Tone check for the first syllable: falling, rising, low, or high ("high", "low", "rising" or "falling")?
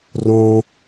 high